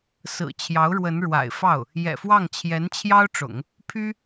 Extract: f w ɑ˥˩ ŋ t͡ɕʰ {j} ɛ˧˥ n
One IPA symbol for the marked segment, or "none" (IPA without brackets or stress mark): j